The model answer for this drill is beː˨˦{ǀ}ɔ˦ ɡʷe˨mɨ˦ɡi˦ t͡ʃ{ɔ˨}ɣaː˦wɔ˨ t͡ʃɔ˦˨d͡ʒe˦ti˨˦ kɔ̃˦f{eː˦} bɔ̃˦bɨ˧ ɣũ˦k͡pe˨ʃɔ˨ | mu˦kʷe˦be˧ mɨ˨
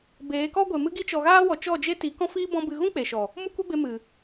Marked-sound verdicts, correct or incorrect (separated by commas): incorrect, correct, incorrect